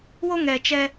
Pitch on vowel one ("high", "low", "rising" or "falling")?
high